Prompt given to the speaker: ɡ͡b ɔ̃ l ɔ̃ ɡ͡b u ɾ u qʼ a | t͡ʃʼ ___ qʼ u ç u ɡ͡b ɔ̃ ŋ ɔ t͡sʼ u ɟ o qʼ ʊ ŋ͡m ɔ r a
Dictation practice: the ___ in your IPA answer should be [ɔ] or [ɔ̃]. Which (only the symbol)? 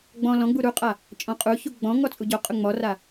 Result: ɔ̃